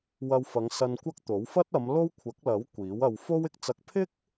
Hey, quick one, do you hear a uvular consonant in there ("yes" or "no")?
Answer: no